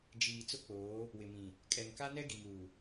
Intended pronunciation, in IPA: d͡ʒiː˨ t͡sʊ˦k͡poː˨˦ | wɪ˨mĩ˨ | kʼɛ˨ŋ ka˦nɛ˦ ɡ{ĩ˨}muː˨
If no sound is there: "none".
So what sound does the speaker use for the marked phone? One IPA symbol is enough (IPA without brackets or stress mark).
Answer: i˨